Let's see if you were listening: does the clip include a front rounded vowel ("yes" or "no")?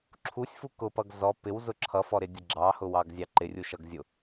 no